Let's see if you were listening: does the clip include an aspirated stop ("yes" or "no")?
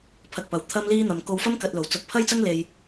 yes